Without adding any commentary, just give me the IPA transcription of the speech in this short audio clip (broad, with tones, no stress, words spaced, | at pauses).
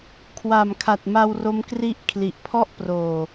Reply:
kʰwa˨˩mkʰa˨˩t̚ma˧w ro˦˥mkri˥˩ʔ kʰli˨˩ʔpʰɔ˥˩ʔproː˨˩